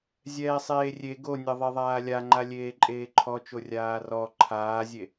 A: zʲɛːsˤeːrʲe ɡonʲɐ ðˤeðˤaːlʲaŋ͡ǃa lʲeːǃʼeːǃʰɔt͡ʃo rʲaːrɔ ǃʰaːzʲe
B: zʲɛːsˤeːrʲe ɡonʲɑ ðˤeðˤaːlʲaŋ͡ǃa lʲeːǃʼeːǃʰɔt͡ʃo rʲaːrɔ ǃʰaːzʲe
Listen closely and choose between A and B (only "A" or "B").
A